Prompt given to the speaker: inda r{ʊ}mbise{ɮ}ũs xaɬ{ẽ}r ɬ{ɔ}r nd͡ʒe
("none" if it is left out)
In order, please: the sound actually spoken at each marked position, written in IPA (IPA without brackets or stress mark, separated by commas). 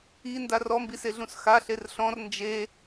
ɔ, ɮ, e, ɔ̃